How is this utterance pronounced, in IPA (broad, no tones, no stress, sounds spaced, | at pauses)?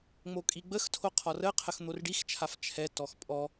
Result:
ŋ͡m o kʼ i ɡ͡b ə x tʰ o qʰ ɔ r ə qʰ ə x n̪ o r ɖ i x t͡ʃʰ a f t͡ʃʰ ɛ t ɔ x pʼ ɔ